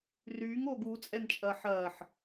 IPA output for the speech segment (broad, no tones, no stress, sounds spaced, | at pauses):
r yː ŋ oː ɡ u t͡sʼ ɛ n t͡ʃʼ ɐː ħ ɐː ħ